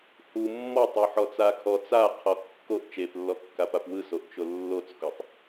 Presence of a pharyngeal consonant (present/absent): present